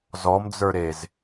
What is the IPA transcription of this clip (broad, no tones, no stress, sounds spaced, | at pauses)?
z ɔ m d͡z ə˞ ɾ e z